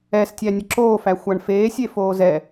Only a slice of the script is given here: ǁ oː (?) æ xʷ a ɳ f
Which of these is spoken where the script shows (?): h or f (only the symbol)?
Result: f